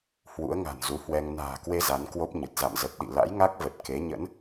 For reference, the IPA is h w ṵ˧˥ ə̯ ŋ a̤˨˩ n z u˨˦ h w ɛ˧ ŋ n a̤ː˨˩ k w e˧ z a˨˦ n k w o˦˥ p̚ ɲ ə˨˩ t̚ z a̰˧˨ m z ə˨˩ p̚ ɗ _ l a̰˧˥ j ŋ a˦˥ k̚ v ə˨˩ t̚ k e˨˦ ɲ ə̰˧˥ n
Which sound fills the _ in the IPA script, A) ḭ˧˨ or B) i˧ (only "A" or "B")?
A